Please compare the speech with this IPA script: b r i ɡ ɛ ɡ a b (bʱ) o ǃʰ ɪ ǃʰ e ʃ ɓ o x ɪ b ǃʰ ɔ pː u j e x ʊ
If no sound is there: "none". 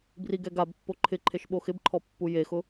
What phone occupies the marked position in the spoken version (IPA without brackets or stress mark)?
pː